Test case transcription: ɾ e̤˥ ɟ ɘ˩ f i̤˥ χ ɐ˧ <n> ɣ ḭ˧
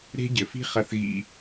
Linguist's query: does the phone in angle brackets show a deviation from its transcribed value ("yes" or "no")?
yes